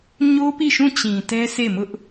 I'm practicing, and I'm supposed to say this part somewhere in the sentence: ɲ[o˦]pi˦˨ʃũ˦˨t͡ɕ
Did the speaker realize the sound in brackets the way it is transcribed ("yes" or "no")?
yes